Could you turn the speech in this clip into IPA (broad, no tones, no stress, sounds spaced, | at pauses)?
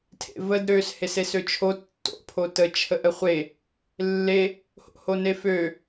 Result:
tʰ ḛ v ə d ɾ ø s h e s e s ø t͡ʃʰ o tː o̰ pʰ o t ə t͡ʃʰ ə ʔ ə χʷ e | lː e | h o̰ h o n e f ø